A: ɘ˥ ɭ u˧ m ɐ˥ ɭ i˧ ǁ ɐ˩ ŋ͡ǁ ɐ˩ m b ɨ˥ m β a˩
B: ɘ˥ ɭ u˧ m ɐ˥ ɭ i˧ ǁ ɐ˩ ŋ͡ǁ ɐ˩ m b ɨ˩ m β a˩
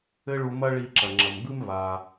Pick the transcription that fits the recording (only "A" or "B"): A